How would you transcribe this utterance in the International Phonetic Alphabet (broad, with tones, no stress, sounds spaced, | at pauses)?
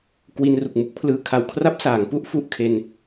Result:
k w i˧ n r u˨˩ k̚ m u˦˥ k̚ pʰ l ɯː˧ kʰ a˧ w kʰ r a˦˥ p̚ s aː˩˦ ŋ p u˥˩ ʔ f u˨˩ ʔ kʰ e˧ n